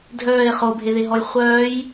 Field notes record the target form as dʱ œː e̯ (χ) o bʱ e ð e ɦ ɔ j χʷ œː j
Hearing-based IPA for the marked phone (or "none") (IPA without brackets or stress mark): χ